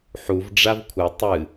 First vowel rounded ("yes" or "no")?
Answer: yes